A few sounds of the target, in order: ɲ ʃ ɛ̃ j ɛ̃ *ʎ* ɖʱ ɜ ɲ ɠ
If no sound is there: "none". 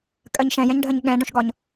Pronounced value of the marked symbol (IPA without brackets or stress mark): ɲ